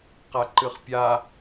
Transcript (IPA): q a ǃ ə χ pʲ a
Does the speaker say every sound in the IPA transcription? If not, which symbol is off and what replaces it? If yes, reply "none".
ə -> ɨ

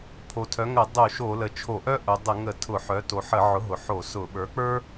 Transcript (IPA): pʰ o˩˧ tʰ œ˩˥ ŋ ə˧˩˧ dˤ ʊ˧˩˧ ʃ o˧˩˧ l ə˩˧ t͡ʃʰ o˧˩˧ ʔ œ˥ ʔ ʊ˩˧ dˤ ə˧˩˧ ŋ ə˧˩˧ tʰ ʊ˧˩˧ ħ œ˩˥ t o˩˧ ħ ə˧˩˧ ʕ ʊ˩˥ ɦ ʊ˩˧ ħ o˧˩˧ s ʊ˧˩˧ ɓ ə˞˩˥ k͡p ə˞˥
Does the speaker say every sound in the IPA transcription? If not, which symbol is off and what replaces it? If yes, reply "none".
none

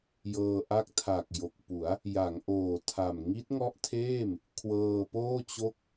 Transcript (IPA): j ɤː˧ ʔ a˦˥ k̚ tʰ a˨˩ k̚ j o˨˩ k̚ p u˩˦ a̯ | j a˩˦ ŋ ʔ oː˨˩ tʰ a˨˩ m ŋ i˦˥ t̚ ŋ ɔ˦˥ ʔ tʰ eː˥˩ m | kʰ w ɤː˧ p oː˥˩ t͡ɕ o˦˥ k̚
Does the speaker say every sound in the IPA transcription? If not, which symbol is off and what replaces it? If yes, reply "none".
none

